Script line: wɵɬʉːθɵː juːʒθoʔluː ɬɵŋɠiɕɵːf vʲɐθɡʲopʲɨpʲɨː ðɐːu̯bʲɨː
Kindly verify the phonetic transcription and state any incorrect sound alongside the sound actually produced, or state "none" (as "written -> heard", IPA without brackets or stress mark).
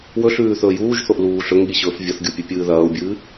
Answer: none